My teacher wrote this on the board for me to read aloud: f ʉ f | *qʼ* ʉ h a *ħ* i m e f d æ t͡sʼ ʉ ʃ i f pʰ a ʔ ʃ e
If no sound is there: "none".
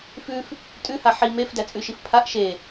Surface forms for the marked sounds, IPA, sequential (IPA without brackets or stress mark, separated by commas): tʼ, ħ